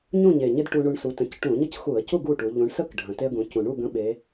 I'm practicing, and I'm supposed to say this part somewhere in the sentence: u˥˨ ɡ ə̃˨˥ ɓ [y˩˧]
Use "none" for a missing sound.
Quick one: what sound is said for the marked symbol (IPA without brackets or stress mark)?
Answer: e˩˧